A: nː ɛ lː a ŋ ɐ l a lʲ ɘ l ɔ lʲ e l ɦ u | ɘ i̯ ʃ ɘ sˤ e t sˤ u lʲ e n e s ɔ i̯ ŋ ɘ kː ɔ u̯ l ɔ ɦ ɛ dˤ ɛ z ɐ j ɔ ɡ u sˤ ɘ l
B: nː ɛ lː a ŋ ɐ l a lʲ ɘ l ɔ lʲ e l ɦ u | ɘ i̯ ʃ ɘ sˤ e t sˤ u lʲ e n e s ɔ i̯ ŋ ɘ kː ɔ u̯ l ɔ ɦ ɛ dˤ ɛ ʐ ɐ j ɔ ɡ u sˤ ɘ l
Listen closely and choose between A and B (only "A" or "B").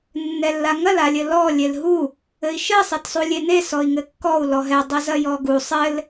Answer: A